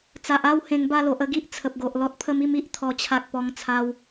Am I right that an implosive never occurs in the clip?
yes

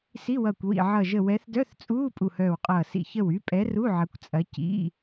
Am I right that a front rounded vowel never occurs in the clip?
no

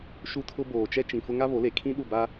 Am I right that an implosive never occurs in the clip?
no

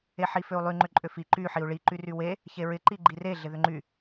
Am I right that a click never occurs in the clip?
no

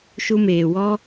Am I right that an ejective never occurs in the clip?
yes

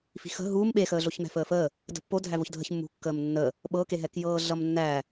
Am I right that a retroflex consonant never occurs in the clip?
yes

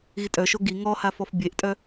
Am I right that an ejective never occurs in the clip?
no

